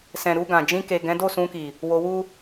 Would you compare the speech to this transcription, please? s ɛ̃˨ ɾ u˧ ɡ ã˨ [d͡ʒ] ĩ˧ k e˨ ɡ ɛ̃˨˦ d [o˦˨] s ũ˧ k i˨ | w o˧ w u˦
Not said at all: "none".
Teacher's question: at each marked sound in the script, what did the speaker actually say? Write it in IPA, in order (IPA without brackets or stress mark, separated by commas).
d͡ʒ, o˦˨